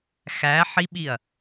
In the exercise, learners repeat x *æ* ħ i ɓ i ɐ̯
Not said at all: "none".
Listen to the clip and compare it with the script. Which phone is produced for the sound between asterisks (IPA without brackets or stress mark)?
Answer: æ